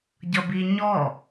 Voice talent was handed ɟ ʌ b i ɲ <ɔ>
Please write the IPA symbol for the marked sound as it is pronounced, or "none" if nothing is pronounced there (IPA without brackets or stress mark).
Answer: ɔ